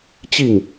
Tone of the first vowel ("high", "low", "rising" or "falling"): falling